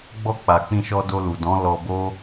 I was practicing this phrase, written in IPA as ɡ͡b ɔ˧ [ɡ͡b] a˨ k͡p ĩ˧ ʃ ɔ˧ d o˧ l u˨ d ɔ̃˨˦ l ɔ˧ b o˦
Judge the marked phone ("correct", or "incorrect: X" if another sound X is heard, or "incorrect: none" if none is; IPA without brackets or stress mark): incorrect: k͡p